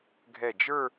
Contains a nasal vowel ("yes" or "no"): no